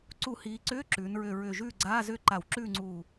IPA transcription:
ǀ u˧˩˧ h iː˩˧ ǀ ʏː˧˥˧ ǁ ʉː˩˧ n ɹ ʏ˧˩ ɹ ʏː˧˩ ʒ ʉː˥˨ ɡ͡ǀ aː˧˥˧ z ʏː˥˨ ǃ a˧˩˧ w ǁ ʉː˥˨ ŋ͡ǀ uː˧˩

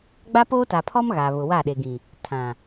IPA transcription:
ɡ͡b a˦ p oː˦ t a˨ pʰ ɔ˦ m ɣ a˨ β ʊ˨ w a˦˨ ɗ e˨ ɡ ĩ˨ | tʰ ã˨

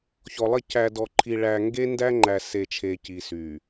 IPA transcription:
ç ɔ˨ lˠ ɐ˦˨ c æ˨ d ɔ˨ ǃʰ i˨ ɭ æ˨ ŋ ɡ e˦ n d æ˦ ŋ͡ǃ æ˨ s e˨ t͡ʃʰ e˨ c i˨ s y˨

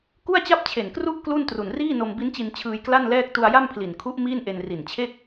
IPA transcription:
k u˥˩ a̯ t͡ɕ a˥˩ p̚ t͡ɕʰ e˨˩ n k r u˥˩ ʔ k l u˥˩ n t r u˨˩ n r iː˥˩ n o˧ m b i˦˥ n t͡ɕ i˧ n t͡ɕʰ ɯː˧ j k l a˥˩ n l ɛː˥˩ k̚ t u˧ a̯ j a˥˩ m pʰ l i˨˩ n kʰ u˦˥ ʔ m iː˥˩ n ʔ e˧ n r i˨˩ n t͡ɕʰ e˥˩ k̚

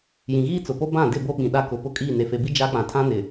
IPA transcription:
j ĩ˨ ɣ iː˦ t͡s ʊ˨ p o˦ b ã˦˨ d ɪ˦˨ b o˦ ɓ ĩ˨ ɗ a˦ k ʊ˨ p ʊ˦ kʼ iː˦˨ n e˨ f e˨ b i˦ d͡ʒ a˦ k͡p ã˨ tʰ ã˦ n ɪ˨

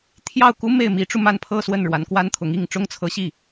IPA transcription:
t̪ʰ j ɑ˥˩ ʊ̯ k u˥ m e˥˩ ɪ̯ m i˧˥ ʈ͡ʂ u˧ m a˥˧ n pʰ ɤ˥˧ s w ə˥˩ n ɻ w a˧˥ n k w a˥ n t̪ʰ ʊ˧˥ ŋ i˥˩ ŋ ʈ͡ʂ ʊ˥ ŋ t͡sʰ ɤ˧˥ ɕ i˥˩

